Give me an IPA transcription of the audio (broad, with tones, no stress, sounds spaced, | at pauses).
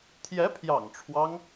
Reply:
t̪ʰ j ɛ˧˥ pʰ j ɑ̰˨˩ ŋ ʈ͡ʂʰ w ɑ˦ ŋ